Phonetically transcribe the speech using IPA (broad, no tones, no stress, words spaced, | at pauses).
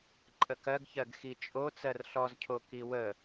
ǃʼəkɜɡçɜɡ xit͡ʃʼo t͡sɜrɬɔzcʰo kiwə